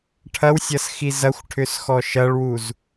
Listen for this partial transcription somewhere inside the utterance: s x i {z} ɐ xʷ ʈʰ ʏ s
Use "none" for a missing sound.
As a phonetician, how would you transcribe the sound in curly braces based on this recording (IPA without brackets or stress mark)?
z